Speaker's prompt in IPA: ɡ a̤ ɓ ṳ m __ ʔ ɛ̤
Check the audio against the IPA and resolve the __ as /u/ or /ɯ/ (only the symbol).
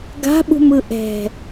ɯ